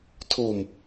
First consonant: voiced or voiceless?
voiceless